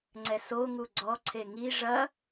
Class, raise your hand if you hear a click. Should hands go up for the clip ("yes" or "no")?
yes